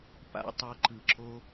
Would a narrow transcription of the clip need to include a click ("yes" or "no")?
yes